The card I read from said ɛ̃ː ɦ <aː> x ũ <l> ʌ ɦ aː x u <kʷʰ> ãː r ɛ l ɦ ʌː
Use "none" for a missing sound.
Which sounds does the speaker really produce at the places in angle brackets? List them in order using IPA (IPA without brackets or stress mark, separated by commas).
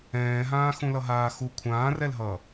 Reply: ãː, l, kʷʰ